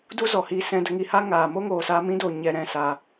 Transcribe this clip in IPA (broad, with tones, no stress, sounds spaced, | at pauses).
d u˦ z ɔ˨ h i˧ s ɛ̃˧ d ə˧ ŋ i˧ h a˦ ŋ aː˨ m o˦ ŋ oː˨ s a˧ m ĩ˦ d o˨ ɲ ɛ˧ ɾ ɛ̃˦˨ s a˧